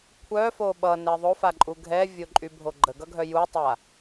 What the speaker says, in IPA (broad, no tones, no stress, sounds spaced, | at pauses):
kʷʰ œ f o ɓ ʌ n ɛ ðˤ o f a ǃʼ u ɡʱ ɛ vʲ o ǃʼ y bʱ o ɡ͡ǃ ə ɡ ʌ ɡʱ œ j u tˤ a